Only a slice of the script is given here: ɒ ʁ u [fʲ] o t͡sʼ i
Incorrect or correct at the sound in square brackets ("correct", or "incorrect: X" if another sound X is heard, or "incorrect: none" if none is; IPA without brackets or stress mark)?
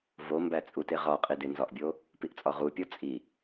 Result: incorrect: pʲ